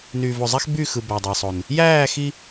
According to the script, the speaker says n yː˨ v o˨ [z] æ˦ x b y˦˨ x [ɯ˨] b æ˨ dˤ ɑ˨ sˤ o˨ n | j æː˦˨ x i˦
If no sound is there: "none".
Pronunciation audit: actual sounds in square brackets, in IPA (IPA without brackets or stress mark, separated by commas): zˤ, ɯ˨